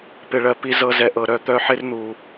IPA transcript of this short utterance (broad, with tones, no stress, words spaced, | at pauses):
pɪ˨ɭɜ˨ pi˧zɤ˧zɛ˨ʔɤ˨ ɾœ˨t̪œ˧ ħɪ˦rn̪u˨